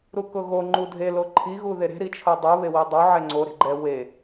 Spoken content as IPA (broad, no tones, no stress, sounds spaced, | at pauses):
ɾ u k ʊ ɣ o ŋ͡ǃ u dʱ e l o ǃʰ i ɣ u ð e ɾ e̤ ɾ i t͡ʃʰ o dˤ u β e w i dˤ o ʕ ɛ ŋ͡ǀ o ɾ e̤ ɡ͡ǃ ɛ w e